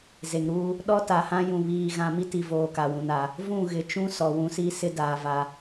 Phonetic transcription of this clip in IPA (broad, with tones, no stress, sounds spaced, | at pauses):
z e˨ ŋ ɾ uː˦ | ɗ ɔ˦ t a˨ h ã˦ j ũ˨ β iː˨ ɣ ã˨ m i˦ t i˨ v oː˨ k a˨ w ũ˨ n a˨ | v ũ˦˨ ɣ ɪ˨ t͡ʃ ũ˦ s ɔ˨ w ũ˦ s i˦ s ɪ˦ d aː˨ v a˨